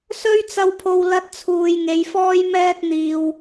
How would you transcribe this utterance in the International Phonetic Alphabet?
sɵ˥ɥt͡sɐ˧wpʰo˧w lɐ˥t̚t͡sʰuː˧j ŋe˨˧jfɔː˥j mɛː˥t̚n̪iː˧w

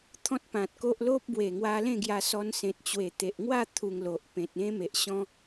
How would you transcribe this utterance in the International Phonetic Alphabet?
t̪ʰɔ̃˦t̚pã˨t̚ko˦ʔ lo˦p̚bwe˨˩ ŋwa˧lẽ˥˧ɡja˧sɔ˧n sẽ˨t̚ t͡ɕwe˨˩t̪e˨ʔ ŋwa˥˧ t̪ʰu˧ŋlo˨ʔ pẽ˨t̚ẽ˦ me˨ʔɕɔ̃˦

